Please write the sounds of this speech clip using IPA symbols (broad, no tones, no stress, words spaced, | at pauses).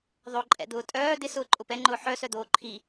ðˤoǃʼɛ̰d̪ʊː tʼœː d̪ɪ sʊːǃʼʊpɛŋ͡ǃʊː ħœ sœd̪oːǃʰi